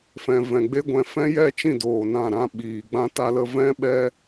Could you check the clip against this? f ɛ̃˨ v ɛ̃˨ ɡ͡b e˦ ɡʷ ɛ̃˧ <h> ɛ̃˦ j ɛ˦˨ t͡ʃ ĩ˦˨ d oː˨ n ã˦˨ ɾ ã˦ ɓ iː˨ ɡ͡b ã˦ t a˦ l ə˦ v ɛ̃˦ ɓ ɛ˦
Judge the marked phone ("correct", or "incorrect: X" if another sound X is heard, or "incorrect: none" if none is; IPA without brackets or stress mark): incorrect: f